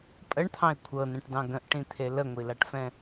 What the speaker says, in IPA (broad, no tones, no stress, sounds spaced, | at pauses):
pʼ ə ɳ t̪ʰ ɑ̃ e̯ kʷʰ ɤ n ɛ̃ ʈ d ɑ̃ ɡ ə̃ ʔ ʈ ĩ t̪ʰ e l ə ŋʷ i l a ʈ f ɛ̃